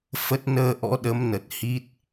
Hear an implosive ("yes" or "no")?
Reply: yes